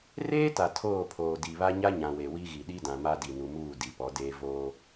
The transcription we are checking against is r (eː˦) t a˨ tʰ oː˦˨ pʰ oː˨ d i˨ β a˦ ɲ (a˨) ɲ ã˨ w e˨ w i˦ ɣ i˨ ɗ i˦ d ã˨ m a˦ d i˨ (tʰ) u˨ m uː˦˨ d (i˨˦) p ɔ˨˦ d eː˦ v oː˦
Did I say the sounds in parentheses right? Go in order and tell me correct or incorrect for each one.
correct, incorrect, incorrect, incorrect

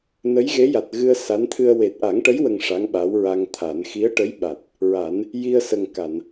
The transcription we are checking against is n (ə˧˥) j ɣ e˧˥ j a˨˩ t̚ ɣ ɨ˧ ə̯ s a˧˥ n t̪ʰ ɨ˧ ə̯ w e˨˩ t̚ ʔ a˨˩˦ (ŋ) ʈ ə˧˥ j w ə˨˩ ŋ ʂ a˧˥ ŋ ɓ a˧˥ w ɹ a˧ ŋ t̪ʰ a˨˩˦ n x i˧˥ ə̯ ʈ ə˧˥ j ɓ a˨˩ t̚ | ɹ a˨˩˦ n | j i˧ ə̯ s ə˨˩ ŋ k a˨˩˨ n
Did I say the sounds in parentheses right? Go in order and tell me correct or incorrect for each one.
correct, correct

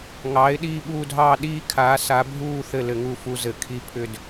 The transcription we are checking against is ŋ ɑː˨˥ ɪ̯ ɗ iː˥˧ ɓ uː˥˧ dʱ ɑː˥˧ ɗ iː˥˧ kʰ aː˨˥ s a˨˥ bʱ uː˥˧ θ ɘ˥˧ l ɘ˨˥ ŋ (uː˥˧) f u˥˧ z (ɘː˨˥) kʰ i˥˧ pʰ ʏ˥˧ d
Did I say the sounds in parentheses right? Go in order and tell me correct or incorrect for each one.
incorrect, incorrect

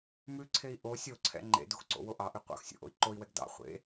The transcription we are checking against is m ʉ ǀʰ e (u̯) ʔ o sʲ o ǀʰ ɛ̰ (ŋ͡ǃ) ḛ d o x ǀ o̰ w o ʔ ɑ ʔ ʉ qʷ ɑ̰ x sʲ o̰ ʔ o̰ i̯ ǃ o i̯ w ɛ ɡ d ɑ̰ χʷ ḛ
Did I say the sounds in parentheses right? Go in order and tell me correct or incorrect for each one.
incorrect, correct

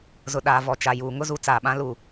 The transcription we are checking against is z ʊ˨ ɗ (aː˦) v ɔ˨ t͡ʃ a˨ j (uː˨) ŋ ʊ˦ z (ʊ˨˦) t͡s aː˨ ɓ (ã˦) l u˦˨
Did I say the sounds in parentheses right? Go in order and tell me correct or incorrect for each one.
incorrect, correct, incorrect, correct

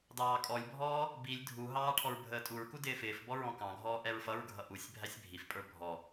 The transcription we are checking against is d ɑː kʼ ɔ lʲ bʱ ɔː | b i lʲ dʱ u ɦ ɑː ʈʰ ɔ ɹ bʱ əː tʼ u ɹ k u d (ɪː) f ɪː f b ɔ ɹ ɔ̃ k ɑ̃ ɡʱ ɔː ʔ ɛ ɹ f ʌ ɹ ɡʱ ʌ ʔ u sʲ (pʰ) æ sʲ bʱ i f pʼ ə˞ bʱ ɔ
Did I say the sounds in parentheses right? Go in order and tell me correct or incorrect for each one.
correct, incorrect

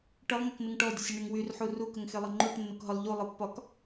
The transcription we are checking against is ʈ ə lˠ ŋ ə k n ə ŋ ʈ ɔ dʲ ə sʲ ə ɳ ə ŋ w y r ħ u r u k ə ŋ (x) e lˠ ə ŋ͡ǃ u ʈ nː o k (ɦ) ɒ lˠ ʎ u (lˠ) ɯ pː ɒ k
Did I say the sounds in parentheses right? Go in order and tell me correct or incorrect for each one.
correct, correct, correct

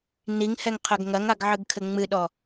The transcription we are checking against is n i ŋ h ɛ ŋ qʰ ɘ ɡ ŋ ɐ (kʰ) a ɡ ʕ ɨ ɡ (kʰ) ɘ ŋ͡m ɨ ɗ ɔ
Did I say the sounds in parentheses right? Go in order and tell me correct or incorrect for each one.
incorrect, correct

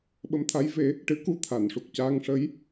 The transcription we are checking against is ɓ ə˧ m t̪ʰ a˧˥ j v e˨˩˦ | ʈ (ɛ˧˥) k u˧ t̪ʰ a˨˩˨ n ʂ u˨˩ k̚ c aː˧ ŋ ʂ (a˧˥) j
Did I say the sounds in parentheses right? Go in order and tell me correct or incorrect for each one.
incorrect, incorrect

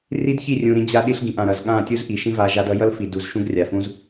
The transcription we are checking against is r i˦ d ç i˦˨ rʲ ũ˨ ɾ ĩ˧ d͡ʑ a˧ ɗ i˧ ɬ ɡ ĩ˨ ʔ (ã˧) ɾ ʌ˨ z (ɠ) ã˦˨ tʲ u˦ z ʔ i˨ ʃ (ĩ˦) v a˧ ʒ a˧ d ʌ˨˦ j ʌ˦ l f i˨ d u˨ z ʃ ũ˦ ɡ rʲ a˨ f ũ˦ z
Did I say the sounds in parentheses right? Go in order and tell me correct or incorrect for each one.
incorrect, correct, correct

